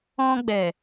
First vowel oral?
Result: no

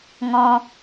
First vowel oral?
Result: no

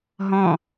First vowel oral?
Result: no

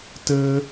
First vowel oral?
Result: yes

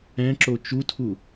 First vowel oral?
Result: no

